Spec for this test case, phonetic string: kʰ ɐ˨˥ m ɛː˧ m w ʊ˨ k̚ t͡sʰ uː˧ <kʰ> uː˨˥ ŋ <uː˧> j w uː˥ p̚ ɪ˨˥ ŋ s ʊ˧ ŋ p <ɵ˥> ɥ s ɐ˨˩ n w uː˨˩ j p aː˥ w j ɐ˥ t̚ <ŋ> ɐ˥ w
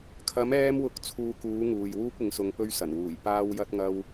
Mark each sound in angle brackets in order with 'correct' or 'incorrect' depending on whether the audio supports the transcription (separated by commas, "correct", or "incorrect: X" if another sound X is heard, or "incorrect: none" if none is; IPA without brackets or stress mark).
incorrect: k, incorrect: uː˨, correct, correct